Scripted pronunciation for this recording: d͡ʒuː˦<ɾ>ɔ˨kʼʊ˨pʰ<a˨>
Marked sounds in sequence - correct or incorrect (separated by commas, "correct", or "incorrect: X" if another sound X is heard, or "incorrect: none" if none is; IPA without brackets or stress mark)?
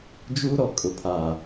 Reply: correct, correct